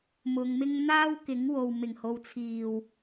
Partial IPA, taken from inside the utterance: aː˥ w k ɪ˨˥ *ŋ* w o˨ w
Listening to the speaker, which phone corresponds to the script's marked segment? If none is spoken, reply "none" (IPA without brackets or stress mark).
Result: ŋ